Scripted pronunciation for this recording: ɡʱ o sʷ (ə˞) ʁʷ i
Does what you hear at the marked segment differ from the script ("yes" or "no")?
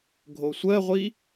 yes